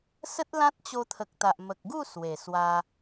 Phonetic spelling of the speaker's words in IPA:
s ə˦ t̚ l ã˦ t̚ t͡ɕ o˧ t̪ʰ ə˨ k̚ t̪ a˨ ʔ m ə˨ k̚ ɡ u˥˧ s w e˨˩ s w a˧

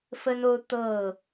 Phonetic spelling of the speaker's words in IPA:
f ə˦ n o˦ ʊ̯ t̪ ɤ˥˨

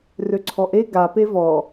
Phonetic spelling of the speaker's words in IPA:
r ø ǀʰ ɔ ʔ e ɡ a p e v ɔ

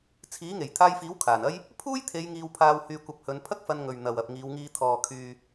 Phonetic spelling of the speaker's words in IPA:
t͡sʰ iː˨˥ ŋ e˨˩ j t̪ʰ aː˧ j f iː˨˥ w kʰ aː˨˩ n ɐ˥ j | pʰ uː˥ j t̪ʰ e˨˧ j ŋ iː˧ w pʰ aː˧ w h yː˧ kʷ ɐ˧ p̚ h ɵ˨˧ n pʰ ɐ˥ k̚ f ɐ˧ n ŋ ɵ˨ ɥ n̪ ɐ˨ w ɐ˨ p̚ ŋ iː˨˧ w ŋ iː˧ t̪ʰ ɔː˨ kʰ yː˧

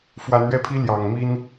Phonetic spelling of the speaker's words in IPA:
f w a˨˦ n ɥ ɛ˦ pʰ i˦ l j ɑ˨˩ ŋ m i˦ n

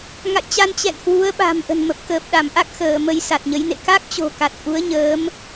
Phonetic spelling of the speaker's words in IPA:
ŋ a̰˧˨ j t͡ɕ a˧ n t͡ɕ ɛ̰˧˨ n h w u˨˦ ə̯ ɓ a̤˨˩ m ʔ ə̤˨˩ n m ə˨˩ p̚ k əː˨˩ p̚ ɗ a˧˩ m ʔ a˦˥ k̚ x əː˧˩ m ə˧ j s a˨˩ t̚ ɲ ə˨˦ j n ḛ˧˨ k a˦˥ k̚ t͡ɕ o̤˨˩ k a˨˩ t̚ ʔ u˨˦ ə̯ ɲ əː˨˦ m

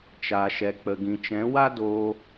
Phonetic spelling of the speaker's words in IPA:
t͡ʃ a˨ ʃ ɛ˨ k͡p ə˨ ɡ ĩ˨ t͡ʃ ɛ̃˨˦ w a˦ d oː˧

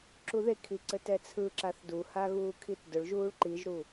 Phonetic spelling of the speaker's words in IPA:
ǁ u ð e kʰ i ǀ ɘ t ɛ t͡sʰ ɯ ǁ a θ d u h a ɣ uː kʰ i t d ʊ ɭ ʒ uː ɭ ǃ i ʒ ɾ u

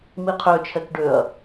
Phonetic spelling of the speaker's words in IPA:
m i qʰ ø t͡ʃʰ ɛ k ɖ ø ɐ̯

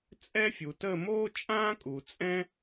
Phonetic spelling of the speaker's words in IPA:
t͡sʼ ɛ˥ fʲ u˨ t ə˥˧ m oː˥ t͡ʃʼ ãː˥ kʼ u˨ t͡sʼ ɛ̃˥

